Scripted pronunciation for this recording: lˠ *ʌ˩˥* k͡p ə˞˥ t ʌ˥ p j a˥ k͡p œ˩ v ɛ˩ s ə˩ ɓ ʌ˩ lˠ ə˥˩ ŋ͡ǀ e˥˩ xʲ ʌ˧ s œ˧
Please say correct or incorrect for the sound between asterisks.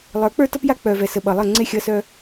incorrect